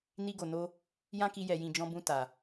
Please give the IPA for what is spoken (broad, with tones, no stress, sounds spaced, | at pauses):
n i˧ ɡ o˨ n o˧ | j ã˦ k i˧ j ɛ˨ j ĩ˨ d͡ʒ ɔ̃˧ b ũ˧ t a˨